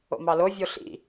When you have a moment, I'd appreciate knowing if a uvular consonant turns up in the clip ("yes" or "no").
no